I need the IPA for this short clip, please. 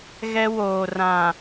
ɣ ɛ˦ w oː˨ r ã˨

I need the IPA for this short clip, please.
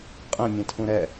qʼ ɛ̃ mʲ ɛ̃ tʰ ũ ɾ ɛ

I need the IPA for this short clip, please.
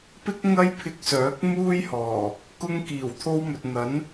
p ɪ˥ k̚ ŋ ɐ˥ j pʰ ɪ˧ k̚ s œː˨˥ k̚ m uː˥ j h ɔː˨˩ | k ʊ˧ ŋ k iː˨˩ w t̪ʰ o˧ w m ɵ˨ t̚ n̪ ɐ˨˥ n

